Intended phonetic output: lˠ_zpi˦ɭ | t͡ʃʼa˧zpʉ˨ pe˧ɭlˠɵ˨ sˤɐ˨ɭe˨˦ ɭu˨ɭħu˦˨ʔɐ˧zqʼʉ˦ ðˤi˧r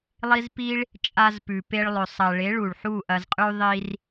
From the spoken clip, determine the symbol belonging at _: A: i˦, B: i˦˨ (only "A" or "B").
A